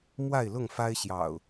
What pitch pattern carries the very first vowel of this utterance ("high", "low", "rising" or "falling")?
falling